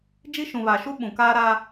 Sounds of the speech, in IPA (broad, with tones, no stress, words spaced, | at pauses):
d͡ʒi˦ʃũ˨βa˨ ʃu˦ ɓũ˨kaː˦ɾa˦